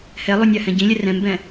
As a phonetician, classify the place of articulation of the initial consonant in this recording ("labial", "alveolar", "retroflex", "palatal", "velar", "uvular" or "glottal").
glottal